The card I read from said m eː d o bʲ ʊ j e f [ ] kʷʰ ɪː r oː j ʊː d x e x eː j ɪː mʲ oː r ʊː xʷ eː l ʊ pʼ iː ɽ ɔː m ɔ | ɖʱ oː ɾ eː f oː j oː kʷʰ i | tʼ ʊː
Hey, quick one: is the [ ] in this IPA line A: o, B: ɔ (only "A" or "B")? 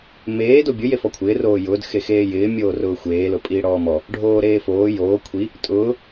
B